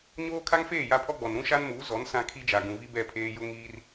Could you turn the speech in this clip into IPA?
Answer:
ɲ oː˦ kʰ a˦ ŋ f eː˦˨ j a˦ pʰ ɔ˦ ɡ͡b ɔ˨ n ɾ ũ˦ ʃ a˦ n m uː˨˦ z ɔ˨˦ n s ã˦ kʰ i˦ d͡ʒ a˨ ɡ ũ˨ v i˦ b ɛ˦˨ pʰ eː˦ j ʊ˦ ŋ iː˦ r

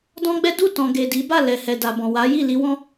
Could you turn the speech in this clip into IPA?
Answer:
d ɔ̃˦ ɡ͡b ɛ˦ d u˦˨ t ɔ̃˨ ɡ e˨ d i˨˦ b a˦˨ l ɛ˨ h ɛ˨ d a˨ b ɔ̃˨ w a˨˦ j i˦˨ l i˧ w ɔ̃˦

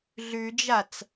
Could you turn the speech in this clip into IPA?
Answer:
ɮ ʉ d͡ʒ a t͡s

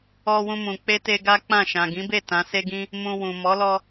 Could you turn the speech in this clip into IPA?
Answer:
ɔ˧ w ũ˧ m ũ˨ k͡p e˧ t e˧ ɡ a˦ k͡p ã˦˨ ʃ ã˨ ɡ ĩ˨˦ b e˦˨ t ã˨˦ s e˦ ɡ ĩ˦ | m ũ˧ w ũ˨ m ɔ˨˦ l ɔ˧

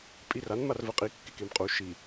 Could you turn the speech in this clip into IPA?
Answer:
pʼ i r a n m a r v ɛ qʼ i kː e k e m qʼ u ʃ i

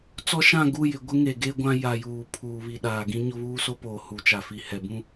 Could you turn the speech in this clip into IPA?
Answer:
t͡s ɔ˦ ʃ ã˦˨ ɡ u˦˨ j ɪ˨ ɡʷ ɪ˦ ŋ e˨ ɡ e˦ ɡʷ ã˦ j a˨ j uː˨ pʰ uː˨ β i˨ ɗ aː˨ ɡ ĩ˦ ɲ ʊ˦ β uː˦ s o˦ p oː˨ h u˨ t͡ʃ a˨ f i˨ h ɛ˨ b ũ˦

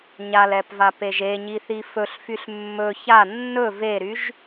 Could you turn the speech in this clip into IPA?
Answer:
ɲ a l ɛ p v a p e ʒ e ɲ i θ i f ɵ ɬ f y ɬ mː ɵ ç a nː ɵ v e ɾ y ʒ

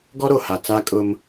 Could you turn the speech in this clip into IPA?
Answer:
ɡ ɔ˦ ɾ o˨ h a˨ t͡s a˦ kʼ ʊ˦ m

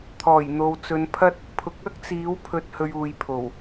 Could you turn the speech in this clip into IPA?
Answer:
t̪ʰ ɔː˨˩ j n̪ o˨ w t͡s ɵ˨˧ n pʰ ɐ˥ t̚ | pʰ ʊ˨ k̚ ɐ˥ k̚ t͡s iː˨˥ w pʰ ɵ˧ t̚ h ɵ˧ ɥ uː˨ j pʰ o˨˩ w

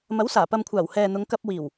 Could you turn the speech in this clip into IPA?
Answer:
m ɐ˨˥ w s aː˨˩ p ɐ˨ m kʷʰ aː˨˩ w h ɛː˨ n̪ ʊ˨˧ ŋ k ɐ˧ p̚ w iː˨˩ w

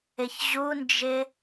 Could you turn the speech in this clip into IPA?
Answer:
ɪ ç ʑ u n d͡ʒ ɪ

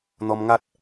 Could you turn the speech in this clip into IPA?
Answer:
n̪ ɔ˧ m ŋ a˦ t̚

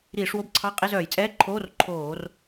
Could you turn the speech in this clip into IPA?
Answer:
ɾ iː˧˩˧ ʂ w o˧˥˧ b ǀʰ ɑ˧˥˧ qʼ e˧˥˧ z œː˧˩˧ j t͡sʼ ɛː˧˥˧ ǃʰ oː˧˥˧ r ǃʰ oː˧˩˧ r

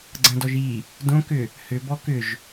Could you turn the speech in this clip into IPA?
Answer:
ɡ͡ǀ ɐ̃ d ɔ ʒ i | d õ k ʏ | h ʏ b ɔ k ʏ ʒ

